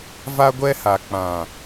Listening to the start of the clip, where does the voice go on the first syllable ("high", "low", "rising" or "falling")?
high